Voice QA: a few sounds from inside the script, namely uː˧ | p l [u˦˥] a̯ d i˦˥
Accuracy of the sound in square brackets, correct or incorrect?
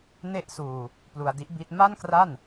incorrect